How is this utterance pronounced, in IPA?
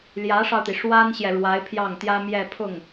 ljä˧˥ʂɑ˧ʊ̯t̪i˩ ʂwa˥nɕjɛ˨ ɻwa˧˥ɪ̯pʰjɑ˥˩ŋt̪jä˥mjɛ˥˧ pʰʊ˥˩ŋ

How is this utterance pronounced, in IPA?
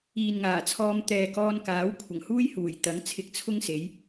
iː˨nŋaː˨˩t͡sʰɔː˧m t̪ɛː˨kɔː˧nkaː˨˥w kʷʰɐ˨˩ŋhuː˥jhuː˨˩jt̪ɐ˨˥ŋ t͡sʰɪ˧k̚t͡sʰʊ˥ŋse˨˥j

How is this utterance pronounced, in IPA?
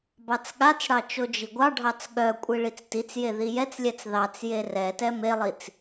bɑt͡sɠat͡sɽɑ t͡ʃod͡ʒiɡʷɑɖʱɑt͡s ɠœ kʷʼiɭit͡stit͡sje ðijɛt͡slʲɛt͡s ðɑt͡sje rɛtɛ melˠit͡s

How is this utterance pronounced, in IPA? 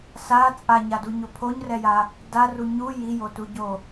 sa t͡sʼaɲaduɲo pʰoɲrɛja | daru ɲu jijotuɟo

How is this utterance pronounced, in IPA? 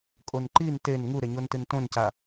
kʼonǃin ten ŋuɾeɲontɨn tõnca

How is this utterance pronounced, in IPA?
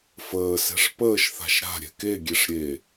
fəːsɛ̤ʂ pəːʃθa̤ʃ ɾa̤ ɾʲɛ̤keɡʲeʂ ɾʲe

